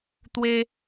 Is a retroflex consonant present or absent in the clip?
absent